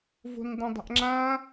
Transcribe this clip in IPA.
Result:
v o̤ n dˤ ã dˤ a̤ ʔ ŋ͡ǁ ã

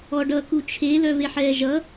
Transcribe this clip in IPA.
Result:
ɔ ɖ ʌ k u t͡ʃʰ e l œ v e ħ ɛː ʒ ʌ

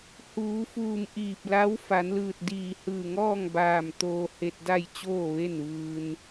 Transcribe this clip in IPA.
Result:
h uː˩˧ f uː˧˩ m ʔ iː˧˩ p̚ l a˧˥ w f a˩˧ n l ɯː˧˩ t̚ d iː˧˩ h ɯː˧˩ ŋ ɔː˥˨ ŋ b aː˧˩ m t̪ oː˧ h e˧ t̚ d a˥˨ j t͡ɕ oː˥˨ ʋ e˥˨ n ʋ ɯː˧ n

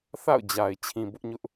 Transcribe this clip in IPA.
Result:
θ a̰˦˨ ʊ̯ d͡ʑ a˨ ɪ̯ t͡ɕʰ ĩ˨ b ʊ˦ ʔ ɲ ʊ˦ ʔ

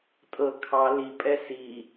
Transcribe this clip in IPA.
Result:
tʼ ɤ kʰ ɑ l i pʼ ɛ s i

